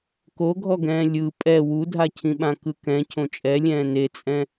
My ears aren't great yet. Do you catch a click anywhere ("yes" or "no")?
no